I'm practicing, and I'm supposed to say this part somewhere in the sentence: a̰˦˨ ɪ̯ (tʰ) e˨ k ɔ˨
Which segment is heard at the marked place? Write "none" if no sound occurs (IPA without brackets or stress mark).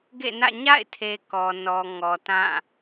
tʰ